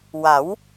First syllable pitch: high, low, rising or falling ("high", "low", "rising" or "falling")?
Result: rising